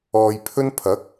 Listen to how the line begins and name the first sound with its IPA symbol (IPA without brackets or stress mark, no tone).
ɔː